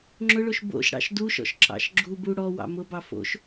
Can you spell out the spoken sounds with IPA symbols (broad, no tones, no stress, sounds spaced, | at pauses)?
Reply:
ŋ͡ǁ ʊ ɭ o ʃ b o̰ ʃ ɽ ɑ̰ ʃ d u ʃ ɔ̰ ʃ ǁ ɑ̰ ʃ ɡ͡ǁ u b u ɽ ɔ w ɑ̰ m ʊ b ɑ f o̰ ʃ